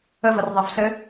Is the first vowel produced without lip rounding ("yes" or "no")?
yes